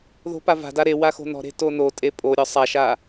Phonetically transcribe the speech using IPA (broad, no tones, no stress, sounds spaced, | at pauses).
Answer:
ð o̤ p a v a̤ d a ɾ e w a x o̤ n ɔ̤ ɾ e̤ t o n o tʼ e pʼ o ɾʲ ɒ sˤ a ʃ a